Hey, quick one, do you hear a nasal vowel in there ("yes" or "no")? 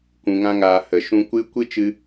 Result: yes